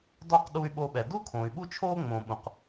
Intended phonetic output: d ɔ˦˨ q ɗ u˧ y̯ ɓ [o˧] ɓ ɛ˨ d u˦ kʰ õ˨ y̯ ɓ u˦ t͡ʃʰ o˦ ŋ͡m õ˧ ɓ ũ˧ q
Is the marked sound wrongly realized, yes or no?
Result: no